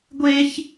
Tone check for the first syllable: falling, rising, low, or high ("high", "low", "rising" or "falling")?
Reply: high